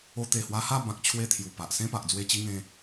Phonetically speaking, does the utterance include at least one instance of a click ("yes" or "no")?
no